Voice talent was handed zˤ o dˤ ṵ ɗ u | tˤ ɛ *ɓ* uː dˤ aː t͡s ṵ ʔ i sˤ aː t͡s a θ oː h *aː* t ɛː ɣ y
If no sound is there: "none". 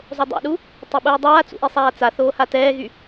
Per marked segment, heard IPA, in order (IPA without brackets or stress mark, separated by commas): ɓ, a